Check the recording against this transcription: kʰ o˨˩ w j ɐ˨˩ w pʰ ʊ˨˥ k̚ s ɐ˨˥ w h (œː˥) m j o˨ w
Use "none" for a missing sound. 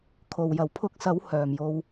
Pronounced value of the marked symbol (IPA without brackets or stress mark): œː˨˩